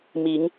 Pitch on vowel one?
rising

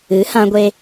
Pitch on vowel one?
rising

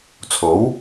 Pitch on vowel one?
rising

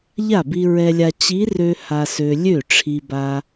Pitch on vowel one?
falling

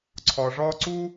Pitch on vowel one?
low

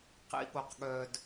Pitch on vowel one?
low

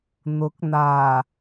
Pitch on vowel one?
rising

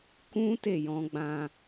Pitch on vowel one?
high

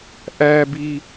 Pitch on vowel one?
high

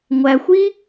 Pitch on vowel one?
low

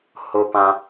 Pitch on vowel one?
high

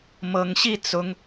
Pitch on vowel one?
rising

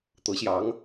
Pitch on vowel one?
rising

